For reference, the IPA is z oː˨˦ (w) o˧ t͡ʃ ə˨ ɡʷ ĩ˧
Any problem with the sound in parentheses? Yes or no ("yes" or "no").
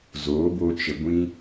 yes